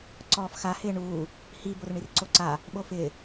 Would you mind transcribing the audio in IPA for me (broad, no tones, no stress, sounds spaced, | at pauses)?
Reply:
ǀ ɔː f x a h ɪː ɳ uː | h i b o r ɳ i r ǀ o ǀ a | ɓ o f ɪː